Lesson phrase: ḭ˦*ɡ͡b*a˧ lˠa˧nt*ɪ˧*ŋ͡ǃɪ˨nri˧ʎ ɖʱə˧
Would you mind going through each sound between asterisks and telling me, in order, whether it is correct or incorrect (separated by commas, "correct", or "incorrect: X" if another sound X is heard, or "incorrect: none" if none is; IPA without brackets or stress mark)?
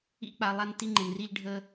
incorrect: k͡p, incorrect: i˧